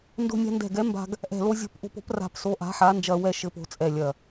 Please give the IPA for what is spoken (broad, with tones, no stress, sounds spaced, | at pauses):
n d o̤˧ nʲ a̤˧ n d ɛ̤˧˩ ɡ ɛ˨˥ m b a̤˧ ɡ | ʔ ɛ̤˧˩ l o˧ zʲ o̤˧ p ʔ o̤˧ p o̤˨˥ p r a̤˧ p s o˨˥ ʔ a̤˨˥ ħ a˨˥ n d͡ʒ ɐ˧ w ɛ˧ ʃ ɘ˧ p o̤˧ t͡sʼ ɛ˧˩ lʲ ɐ˧˩